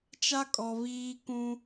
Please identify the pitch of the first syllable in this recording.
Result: high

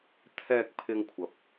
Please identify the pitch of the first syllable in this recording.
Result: low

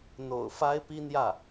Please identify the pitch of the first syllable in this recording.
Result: low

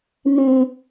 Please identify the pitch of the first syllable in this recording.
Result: low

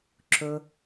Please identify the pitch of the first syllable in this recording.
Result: low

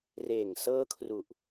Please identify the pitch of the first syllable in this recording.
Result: low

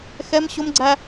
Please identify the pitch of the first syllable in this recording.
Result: high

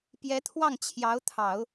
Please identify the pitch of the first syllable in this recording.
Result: rising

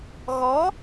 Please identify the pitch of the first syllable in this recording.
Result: rising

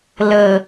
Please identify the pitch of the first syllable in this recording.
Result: low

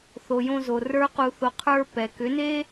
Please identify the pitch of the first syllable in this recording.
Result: low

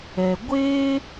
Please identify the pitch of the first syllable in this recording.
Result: low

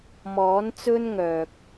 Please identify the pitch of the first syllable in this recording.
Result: rising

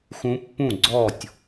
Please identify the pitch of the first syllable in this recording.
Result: rising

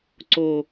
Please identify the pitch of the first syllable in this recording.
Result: high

